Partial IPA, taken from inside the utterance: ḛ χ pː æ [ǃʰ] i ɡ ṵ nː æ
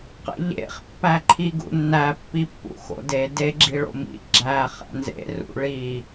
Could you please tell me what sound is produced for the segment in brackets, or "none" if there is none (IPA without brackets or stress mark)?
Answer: ǃʰ